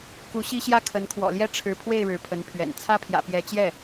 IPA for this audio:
ku˧˥ɕi˥ɕjä˥ kʰə˧˥n kʰwɔ̰˨˩ljɛ˥˩ ʈ͡ʂʰɻ̩˧˥pʰwe˥˩ɪ̯ ɻɻ̩˧˥pʰə˧˥npʰɥɛ̰˨˩n t͡sʰä˥˩pʰjä̰˨˩pjɛ˧˥t͡ɕjɛ˥˩

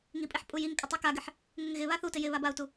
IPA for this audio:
ŋipʼiħ pʼujiŋkʼɪ tˤikaɡɪħ | ŋɪŋɣɪβa θutɪ jɪ βabau̯tu

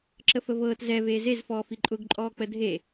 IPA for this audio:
ǁəfəvɤːt zɛveː zezfɔː fiǃʼʊɡǃʼɔː k͡pədʱe

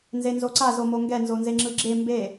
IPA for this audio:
nzenzoǀa zomoŋɡɛ nzonzeŋ͡ǁɯɡ͡ǁe mbe

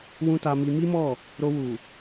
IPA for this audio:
wũ˦ta˧mi˧ mi˦mɔ˦˨ | ɾo˧wu˨

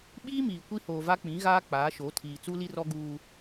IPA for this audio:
ɓiː˦miː˨ kʷi˦hoː˨va˦ k͡pĩ˨˦ɣaː˦ k͡paː˨˦ʃo˨˦tʰiː˨ t͡su˦li˦rɔ˦ ɡuː˦

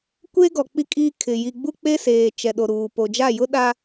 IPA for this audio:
kʷe˦ɡɔ˨ k͡pi˦kʼiː˦ kʰɪ˨ ji˨ɡ͡bu˦k͡pe˦seː˨ t͡ʃɛ˨ɗo˨ɾuː˨ po˨d͡ʒa˦˨ jʊ˦ ɗa˦

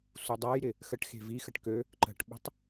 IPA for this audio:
sudˤajɾɪ | xəʈ xe̤vixəʈ kø | ǃə̤ʈɓə̤tˤ

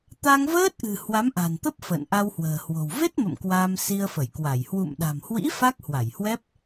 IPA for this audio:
t̪a˧ŋvəː˦˥t̚ʔɨ̤˨˩ hwa˨˦mʔa̤˨˩nt̪ə˦˥p̚ fə̰ː˧˨nʔa˧whwə̤ː˨˩hwo̤˨˩w ve˦˥t̚mə̰˧˨m kwaː˧msi˧ə̯fə˧˩jkwa˧˩j hwṵ˧˨mɗa̤˨˩mhwḭ˧˥ fa˦˥k̚hwa˧˩jhwɛ˦˥p̚

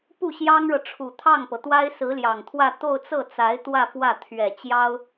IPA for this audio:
pu˥˩ɕjɑ˥ŋɻɤ˨ ʈ͡ʂʰu˨˩t̪ʰɑ˥˩ŋpɤ˩t̪wa˥ɪ̯ sɹ̩˧˥ljɑ˨˩ŋt̪ʰwä˥˧ t̪o˥˧ʊ̯t͡sɤ˥˩t͡sa˧˥ɪ̯ t̪wä˥˧ fwä˥˩t̪ʰɥɛ˨˩ t͡ɕjɑ˥ʊ̯

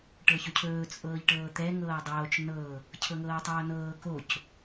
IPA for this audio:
ʈɤçɵcʰɵː t͡sʼɤːʎʈɤːt̪ɛ ŋɤːdˤoːt͡ʃ nɤ | cʰɤŋɤːtˤoːnɤː koc

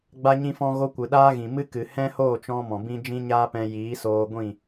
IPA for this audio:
ɡ͡ba˦ɲĩ˦fɔ̃˦ɣo˦ kʷɨ˨ɗaː˦ɣĩ˨ mɨ˦ kɨ˨ hɛ̃˦hoː˦˨t͡ʃɔ̃˧ mɔ̃˨bĩ˦ d͡ʒĩ˦ɲaː˦pɛ̃˧ jiː˨˦soː˧ɡʷĩ˦˨

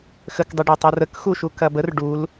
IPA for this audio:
xəkdˤɐɖø tˤorəkxuʃu kɐbər ɖul

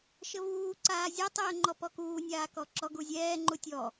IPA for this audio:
ʃɘvuːǀaː zʲatˤəːŋ͡ǃɔ pɔkuː nʲaːkɔǁɔ ɡuzʲɛːŋ͡ǃu tʲɔ

